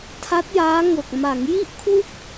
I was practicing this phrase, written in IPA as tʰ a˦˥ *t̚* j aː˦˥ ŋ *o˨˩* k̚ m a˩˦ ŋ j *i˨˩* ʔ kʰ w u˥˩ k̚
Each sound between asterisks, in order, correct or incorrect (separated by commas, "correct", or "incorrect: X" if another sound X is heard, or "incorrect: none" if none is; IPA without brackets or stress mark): correct, correct, incorrect: i˥˩